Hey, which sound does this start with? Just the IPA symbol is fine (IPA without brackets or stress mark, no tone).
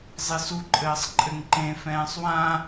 zˤ